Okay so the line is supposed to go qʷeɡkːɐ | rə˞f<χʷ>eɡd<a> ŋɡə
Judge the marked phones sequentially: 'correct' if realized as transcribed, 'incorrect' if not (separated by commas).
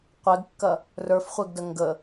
correct, incorrect